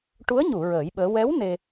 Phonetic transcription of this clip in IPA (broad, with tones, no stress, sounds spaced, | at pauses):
ʈ u˧˥ ə̯ ɲ u˨˩˨ ɹ əː˨˩˦ j ɓ əː˧˥ w ɛ˧˥ w n e˧